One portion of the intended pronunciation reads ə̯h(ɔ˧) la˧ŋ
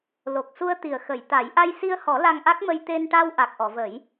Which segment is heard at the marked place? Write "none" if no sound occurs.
ɔ˨˩˦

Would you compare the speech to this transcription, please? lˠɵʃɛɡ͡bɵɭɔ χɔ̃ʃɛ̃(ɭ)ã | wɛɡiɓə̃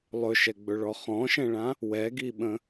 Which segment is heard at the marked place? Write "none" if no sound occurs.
ɭ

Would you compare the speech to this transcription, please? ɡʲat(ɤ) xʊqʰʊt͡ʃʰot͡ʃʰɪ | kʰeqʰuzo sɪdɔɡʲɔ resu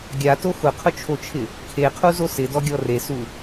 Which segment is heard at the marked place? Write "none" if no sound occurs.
o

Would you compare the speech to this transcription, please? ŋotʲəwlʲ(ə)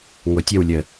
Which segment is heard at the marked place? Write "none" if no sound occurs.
ə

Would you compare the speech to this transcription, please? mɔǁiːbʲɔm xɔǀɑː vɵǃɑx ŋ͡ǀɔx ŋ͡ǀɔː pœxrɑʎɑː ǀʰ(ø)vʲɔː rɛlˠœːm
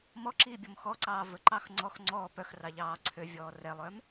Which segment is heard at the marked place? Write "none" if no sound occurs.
ø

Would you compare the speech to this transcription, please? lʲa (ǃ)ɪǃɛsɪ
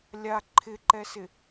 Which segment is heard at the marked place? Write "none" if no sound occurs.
ǃʰ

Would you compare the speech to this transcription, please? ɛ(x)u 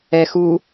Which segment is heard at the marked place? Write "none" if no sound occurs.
x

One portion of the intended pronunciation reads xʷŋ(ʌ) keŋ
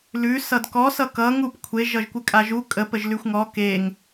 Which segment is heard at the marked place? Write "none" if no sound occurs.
ɔ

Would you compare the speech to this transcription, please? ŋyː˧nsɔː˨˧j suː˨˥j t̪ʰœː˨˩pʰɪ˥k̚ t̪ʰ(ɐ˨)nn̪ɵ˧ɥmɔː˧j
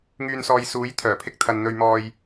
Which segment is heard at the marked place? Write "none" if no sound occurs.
ɐ˨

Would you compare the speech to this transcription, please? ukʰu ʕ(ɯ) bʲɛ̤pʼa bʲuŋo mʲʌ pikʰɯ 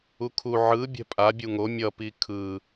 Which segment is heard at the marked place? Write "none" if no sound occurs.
ɯ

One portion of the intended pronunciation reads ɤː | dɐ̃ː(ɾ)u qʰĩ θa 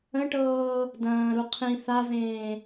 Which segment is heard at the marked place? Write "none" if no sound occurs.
ɾ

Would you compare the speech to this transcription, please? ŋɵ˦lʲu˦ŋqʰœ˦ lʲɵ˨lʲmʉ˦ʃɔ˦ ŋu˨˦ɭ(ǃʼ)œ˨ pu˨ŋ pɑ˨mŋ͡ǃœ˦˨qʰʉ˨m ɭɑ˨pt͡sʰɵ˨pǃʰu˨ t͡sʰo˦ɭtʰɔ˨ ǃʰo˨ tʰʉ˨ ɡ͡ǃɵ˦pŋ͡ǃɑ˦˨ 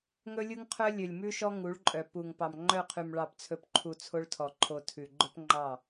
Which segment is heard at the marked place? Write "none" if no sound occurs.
ǃʼ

